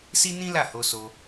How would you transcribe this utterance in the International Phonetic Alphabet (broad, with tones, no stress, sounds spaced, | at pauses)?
s i˦ n ĩ˦ l a˦˨ h o˧ s o˧